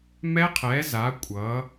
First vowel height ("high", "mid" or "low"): mid